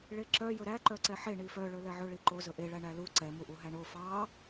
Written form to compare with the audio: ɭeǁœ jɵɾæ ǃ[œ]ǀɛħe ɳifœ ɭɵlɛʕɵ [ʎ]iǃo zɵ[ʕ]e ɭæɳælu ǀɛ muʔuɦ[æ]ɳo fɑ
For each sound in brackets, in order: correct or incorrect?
correct, incorrect: ɭ, incorrect: ʔ, correct

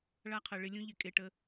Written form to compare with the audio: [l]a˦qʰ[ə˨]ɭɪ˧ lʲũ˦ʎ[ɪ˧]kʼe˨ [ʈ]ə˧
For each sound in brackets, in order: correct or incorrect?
incorrect: ɭ, correct, correct, correct

